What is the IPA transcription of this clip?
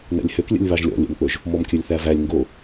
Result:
nɛ̰lʲhøklʲɛ̰lʲ βɑʒlʲɔ̰lʲɛ̰mk͡pɵʒ | mɔmkʲɵlʲθævælʲ ŋɡo

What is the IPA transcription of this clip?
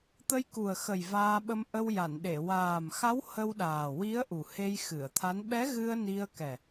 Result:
t̪ə˧jku˨˩ə̯xə˨˩j vaː˧ɓə˧m ʔə˧wja˨˩˨nɗe˨˩˨ waː˨˩mxa˧˥w hə˧wɗaː˨˩wi˧˥ə̯ ʔu˨˩he˧jxɨ˨˩˨ə̯t̪ʰa˧˥n ɓɛ˧˥ɣɨ˧ə̯ ni˧ə̯kɛ˨˩

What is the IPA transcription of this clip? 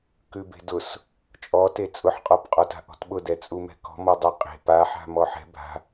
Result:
kʉbe̤dʊs | t͡ʃʼɔte t͡sʼʊħqʼɔpqʼɔta̤ ʔɔ̤tɓʊdɛ t͡sʼumɛ̤kɔ̤ mɔdˤɛqʼe̤ paħa̤ mɔħɛ̤ bʱa̤

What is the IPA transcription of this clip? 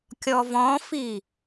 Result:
kʲɔvɔ̃fi

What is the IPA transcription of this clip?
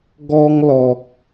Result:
ɡɔ˧ŋlɔ˨k̚

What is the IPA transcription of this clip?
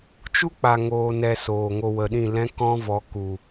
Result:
t͡ʃu˦k͡pa˨ ŋoː˨ nɛ˨ soː˨ŋo˧wə˨ɗĩ˦˨ lɛ̃˦kɔ̃˦vɔ˨˦ ku˨

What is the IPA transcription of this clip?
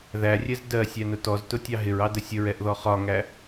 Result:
ðærʲɛz dɜsʲænʊ tɔztʊtʲɑ ɦɪɹɑdə sʲəɹɛʔðɔ χɒŋæ

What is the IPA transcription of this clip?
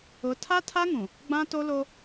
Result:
ʊ˨˦tʰa˦tʰa˦ŋũ˨ | ɡ͡bã˦to˦lo˦

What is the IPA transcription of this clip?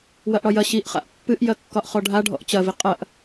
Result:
wɐʔɽɒjɐ ɕiʔχa̰ʔ pːɨʔjɐ kːɒʔχɔɖʱa ɖʱɔ̰ʔt͡ɕɐvi qʼɐʔ

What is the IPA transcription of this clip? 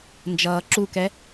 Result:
nd͡ʒʌːǁukɛ

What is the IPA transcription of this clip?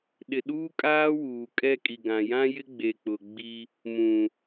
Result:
ɗɪ˨ɗuː˦kʼaː˦ wuː˨kʼɛ˦kʼi˨ɡã˨ jã˦jɪ˦ ɡ͡be˨k͡pʊ˨ ɡ͡bi˦ | mũ˨

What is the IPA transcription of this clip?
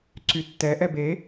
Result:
ǀytːɛ ʔɛbe

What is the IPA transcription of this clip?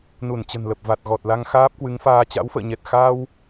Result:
nu˧˩n t͡ɕə̤˨˩nlə˨˩p̚ va˨˩t̚ɣɔ˨˩t̚la˧ŋ xaː˦˥p̚kwɨ˨˦ŋfaː˧ t͡ɕa̰˧˥wfə̰ː˧˨ɲɛ˨˩t̚ xa˧w

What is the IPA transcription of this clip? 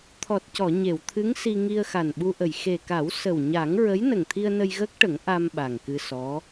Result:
t̪ʰɔ˨˩t̚cɔ˨˩˨ ɲe˨˩˨wt̪ʰɨ˧˥ŋsi˧ ŋi˧ə̯xa˨˩nɓu˧ʔə˨˩j xe˨˩ka˨˩˦w sə˨˩wɲa˨˩˦ŋ ɹə˧˥j nə˨˩ŋt̪ʰi˧ə̯ nə˧jɣəː˦˥k̚ʈə˨˩˦ŋ ʔa˧m ɓa˨˩ŋkɨ˧sɔ˧˥

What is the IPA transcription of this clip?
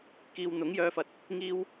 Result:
kiː˨w n̪ʊ˨˥ŋjœː˧fɐ˨t̚ | ŋiː˧w

